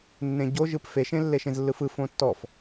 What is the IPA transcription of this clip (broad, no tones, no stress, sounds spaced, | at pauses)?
nː ẽ ɟ o ʒ ɯ p f e ʃ ẽ lː e ʃ ẽ z lː ɯ f ɯ f õ tː ɔ f